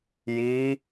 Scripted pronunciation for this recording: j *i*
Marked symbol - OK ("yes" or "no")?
yes